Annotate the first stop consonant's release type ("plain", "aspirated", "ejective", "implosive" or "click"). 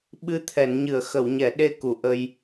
implosive